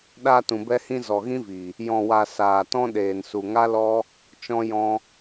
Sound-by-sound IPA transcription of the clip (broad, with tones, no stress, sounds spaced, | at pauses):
ɗ aː˧ t ũ˨ b ɛ˧ h ĩ˧ z ɔ˨ ɣ ĩ˦ v i˨ | j ɔ̃˨ w a˨ s aː˨ t ɔ̃˧ ɗ eː˨ n s u˨ ŋ a˦ l ɔ˦ | t͡ʃ ɔ̃˧ j ɔ̃˧